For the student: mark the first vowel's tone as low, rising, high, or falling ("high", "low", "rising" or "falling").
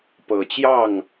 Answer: low